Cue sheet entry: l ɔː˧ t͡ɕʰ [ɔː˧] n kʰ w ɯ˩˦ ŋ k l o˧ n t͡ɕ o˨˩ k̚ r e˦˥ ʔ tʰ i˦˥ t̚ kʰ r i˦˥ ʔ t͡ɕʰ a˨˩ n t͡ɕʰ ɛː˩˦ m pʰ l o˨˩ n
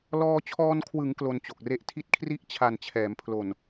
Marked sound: correct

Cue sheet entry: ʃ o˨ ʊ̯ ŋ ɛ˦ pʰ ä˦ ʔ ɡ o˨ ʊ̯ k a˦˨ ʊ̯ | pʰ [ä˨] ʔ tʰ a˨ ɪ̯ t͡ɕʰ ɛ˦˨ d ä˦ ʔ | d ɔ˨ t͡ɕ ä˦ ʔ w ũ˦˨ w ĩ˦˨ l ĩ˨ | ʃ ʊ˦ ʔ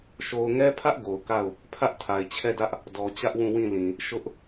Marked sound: incorrect: ä˦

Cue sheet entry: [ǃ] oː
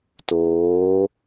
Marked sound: incorrect: t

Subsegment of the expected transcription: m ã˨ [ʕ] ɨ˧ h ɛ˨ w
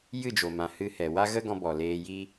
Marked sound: incorrect: h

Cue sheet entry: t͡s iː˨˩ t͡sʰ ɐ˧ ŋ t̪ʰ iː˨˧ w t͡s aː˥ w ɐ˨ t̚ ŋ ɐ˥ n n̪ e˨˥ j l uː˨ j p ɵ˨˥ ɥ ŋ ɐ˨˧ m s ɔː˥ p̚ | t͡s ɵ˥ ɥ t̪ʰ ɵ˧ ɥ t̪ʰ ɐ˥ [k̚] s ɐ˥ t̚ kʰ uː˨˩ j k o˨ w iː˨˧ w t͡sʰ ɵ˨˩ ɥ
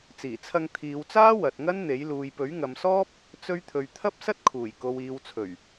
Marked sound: incorrect: p̚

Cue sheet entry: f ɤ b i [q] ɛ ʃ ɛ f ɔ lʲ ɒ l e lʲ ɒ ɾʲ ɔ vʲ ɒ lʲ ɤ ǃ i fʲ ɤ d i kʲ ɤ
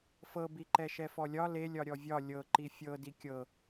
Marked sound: incorrect: ǃ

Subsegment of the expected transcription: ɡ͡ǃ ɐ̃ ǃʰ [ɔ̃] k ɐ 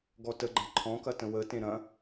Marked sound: correct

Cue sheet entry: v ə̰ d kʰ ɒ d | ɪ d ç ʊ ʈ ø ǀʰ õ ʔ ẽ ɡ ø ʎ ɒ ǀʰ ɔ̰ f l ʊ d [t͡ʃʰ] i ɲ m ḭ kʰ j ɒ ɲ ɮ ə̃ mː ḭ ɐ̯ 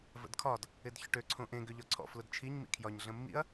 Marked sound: correct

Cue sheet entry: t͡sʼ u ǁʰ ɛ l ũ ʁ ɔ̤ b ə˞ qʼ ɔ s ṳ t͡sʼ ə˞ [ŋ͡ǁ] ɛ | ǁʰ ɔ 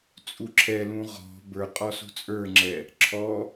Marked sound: correct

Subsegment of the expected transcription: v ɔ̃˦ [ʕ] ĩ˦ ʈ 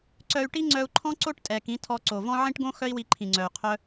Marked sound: correct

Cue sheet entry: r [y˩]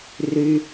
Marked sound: correct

